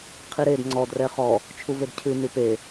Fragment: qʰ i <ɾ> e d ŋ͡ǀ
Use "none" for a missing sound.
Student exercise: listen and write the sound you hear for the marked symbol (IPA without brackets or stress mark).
ɾ